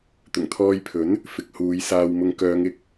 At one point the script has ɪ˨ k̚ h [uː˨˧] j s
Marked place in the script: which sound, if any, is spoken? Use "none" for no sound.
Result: uː˨˧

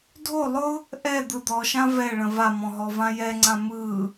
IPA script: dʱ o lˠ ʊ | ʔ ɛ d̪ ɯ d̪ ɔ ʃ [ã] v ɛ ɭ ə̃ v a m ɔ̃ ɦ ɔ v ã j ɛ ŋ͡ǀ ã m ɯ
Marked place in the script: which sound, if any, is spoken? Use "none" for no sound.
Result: ã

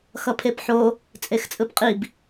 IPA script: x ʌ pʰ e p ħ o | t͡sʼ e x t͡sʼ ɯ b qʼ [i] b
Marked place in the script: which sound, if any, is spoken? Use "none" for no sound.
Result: i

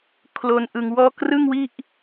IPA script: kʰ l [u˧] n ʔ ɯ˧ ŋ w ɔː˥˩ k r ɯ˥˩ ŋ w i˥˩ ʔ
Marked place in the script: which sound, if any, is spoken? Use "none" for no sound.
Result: o˧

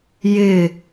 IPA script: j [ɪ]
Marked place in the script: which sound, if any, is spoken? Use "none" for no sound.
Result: ɪ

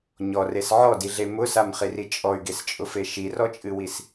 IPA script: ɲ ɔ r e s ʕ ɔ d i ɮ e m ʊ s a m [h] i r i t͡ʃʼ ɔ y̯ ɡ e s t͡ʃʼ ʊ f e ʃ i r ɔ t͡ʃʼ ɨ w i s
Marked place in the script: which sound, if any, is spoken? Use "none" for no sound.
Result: χ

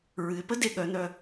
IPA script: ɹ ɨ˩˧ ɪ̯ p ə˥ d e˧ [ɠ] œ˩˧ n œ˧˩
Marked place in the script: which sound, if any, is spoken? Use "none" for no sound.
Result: ɠ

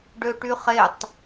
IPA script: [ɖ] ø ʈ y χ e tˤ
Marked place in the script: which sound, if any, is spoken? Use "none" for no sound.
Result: ɖ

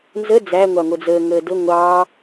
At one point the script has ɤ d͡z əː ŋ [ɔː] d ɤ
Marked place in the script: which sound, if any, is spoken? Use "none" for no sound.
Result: əː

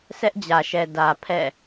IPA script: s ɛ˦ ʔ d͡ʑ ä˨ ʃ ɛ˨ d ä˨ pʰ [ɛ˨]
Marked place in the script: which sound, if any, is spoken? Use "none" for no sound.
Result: ɛ̰˦˨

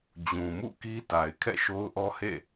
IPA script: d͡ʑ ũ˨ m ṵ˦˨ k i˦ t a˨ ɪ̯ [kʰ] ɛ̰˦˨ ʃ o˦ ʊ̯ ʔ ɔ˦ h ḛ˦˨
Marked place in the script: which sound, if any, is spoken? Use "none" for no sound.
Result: kʰ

